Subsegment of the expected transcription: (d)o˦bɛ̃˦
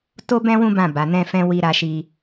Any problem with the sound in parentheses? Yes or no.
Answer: yes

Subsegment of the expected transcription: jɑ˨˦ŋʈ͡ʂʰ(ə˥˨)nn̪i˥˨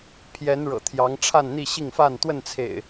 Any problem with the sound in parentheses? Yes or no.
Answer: yes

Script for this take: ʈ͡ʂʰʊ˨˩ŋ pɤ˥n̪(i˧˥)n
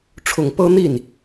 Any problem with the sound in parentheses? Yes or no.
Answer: yes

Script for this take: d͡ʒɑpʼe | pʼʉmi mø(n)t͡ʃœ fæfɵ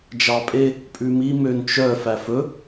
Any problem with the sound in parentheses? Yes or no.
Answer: no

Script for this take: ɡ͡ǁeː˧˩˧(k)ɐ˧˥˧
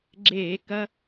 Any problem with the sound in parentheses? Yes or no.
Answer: no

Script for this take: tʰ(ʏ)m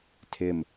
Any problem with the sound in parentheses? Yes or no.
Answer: yes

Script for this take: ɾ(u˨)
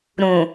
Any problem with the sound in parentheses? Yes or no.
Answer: yes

